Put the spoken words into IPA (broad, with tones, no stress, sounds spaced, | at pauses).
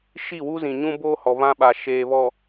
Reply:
ʃ i˦˨ w u˦ z ĩ˨ ɲ ũ˦ b oː˦ h ɔ˨ β ã˦ ɓ a˨ ʃ eː˨ β ɔ˨